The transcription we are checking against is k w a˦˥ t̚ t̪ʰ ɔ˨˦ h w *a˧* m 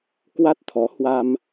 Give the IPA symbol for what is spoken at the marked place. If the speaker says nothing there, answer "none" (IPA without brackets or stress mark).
a˧